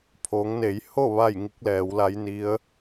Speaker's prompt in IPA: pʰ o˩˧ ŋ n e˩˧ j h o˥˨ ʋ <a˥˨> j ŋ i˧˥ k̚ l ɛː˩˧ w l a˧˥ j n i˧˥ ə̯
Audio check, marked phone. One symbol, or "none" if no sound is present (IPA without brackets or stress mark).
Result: a˥˨